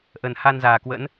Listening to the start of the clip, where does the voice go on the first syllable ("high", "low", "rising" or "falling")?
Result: low